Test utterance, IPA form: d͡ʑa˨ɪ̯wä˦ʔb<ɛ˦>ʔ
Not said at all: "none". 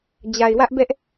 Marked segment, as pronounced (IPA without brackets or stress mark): ɛ˦